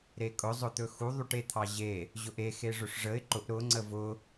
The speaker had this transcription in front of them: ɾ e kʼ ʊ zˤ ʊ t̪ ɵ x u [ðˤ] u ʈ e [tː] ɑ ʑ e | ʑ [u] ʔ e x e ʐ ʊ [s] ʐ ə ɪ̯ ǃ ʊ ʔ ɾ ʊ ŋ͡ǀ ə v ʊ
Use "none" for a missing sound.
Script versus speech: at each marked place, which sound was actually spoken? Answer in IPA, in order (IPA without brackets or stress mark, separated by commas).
ðˤ, t̪ʰ, ʊ, ʂ